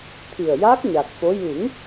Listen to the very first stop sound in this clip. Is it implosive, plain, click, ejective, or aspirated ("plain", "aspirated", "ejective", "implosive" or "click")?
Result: aspirated